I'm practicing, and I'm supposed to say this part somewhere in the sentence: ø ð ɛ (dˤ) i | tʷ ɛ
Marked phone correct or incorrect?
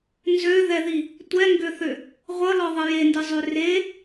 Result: incorrect: ð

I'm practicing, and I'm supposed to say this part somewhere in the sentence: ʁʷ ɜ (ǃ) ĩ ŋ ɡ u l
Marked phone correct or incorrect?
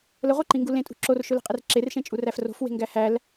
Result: correct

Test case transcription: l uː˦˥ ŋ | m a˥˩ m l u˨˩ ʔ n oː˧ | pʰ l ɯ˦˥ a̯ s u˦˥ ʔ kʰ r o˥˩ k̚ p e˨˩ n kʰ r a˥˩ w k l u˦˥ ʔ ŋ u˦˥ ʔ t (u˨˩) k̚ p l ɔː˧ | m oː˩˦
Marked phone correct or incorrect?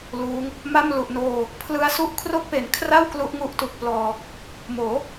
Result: correct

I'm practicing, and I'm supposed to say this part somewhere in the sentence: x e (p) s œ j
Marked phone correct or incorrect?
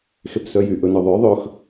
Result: correct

